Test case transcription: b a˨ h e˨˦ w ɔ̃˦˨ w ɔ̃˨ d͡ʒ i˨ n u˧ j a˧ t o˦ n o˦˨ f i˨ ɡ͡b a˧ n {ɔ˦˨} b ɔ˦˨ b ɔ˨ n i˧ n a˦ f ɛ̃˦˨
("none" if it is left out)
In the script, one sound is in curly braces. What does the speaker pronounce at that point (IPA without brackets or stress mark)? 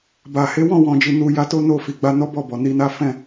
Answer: ɔ˦